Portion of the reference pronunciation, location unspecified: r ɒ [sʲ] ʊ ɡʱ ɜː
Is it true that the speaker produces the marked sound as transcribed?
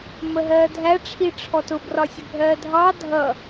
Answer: yes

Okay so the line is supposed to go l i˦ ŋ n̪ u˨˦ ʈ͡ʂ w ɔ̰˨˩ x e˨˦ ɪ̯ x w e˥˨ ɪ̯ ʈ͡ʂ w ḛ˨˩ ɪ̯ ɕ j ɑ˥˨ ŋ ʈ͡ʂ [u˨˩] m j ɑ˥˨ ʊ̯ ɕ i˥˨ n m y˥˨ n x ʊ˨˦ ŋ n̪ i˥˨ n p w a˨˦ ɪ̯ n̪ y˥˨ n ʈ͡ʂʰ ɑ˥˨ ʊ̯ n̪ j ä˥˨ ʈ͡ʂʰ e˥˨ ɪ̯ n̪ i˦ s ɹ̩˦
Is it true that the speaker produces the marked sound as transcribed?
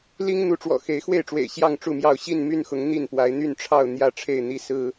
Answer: no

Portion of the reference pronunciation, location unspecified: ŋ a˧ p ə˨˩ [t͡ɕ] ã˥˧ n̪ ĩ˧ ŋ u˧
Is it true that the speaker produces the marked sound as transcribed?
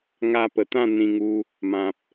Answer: no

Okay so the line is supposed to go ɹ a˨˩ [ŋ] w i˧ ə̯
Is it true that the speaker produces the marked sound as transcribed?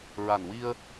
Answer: no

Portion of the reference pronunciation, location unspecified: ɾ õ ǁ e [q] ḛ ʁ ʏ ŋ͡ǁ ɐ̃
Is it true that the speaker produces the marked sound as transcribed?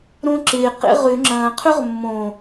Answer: yes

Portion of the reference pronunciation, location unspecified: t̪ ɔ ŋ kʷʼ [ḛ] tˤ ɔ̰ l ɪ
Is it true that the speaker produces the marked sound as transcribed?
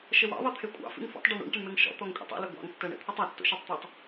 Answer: yes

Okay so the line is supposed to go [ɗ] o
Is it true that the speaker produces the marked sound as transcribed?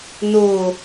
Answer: no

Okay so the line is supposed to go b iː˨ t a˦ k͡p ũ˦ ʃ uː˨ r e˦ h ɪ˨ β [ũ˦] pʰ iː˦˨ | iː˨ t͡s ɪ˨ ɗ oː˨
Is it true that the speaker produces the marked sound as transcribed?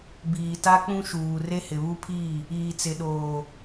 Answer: no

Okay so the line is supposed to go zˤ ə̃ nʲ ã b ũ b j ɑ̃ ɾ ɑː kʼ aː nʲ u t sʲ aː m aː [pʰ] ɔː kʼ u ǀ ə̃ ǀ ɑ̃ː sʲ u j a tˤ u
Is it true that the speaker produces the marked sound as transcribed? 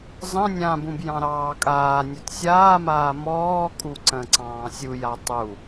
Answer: no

